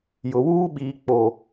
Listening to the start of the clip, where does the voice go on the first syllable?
low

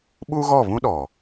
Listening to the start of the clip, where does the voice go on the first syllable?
high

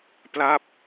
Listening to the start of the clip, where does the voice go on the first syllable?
falling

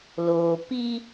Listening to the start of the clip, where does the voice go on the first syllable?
low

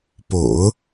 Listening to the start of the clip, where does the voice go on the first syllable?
low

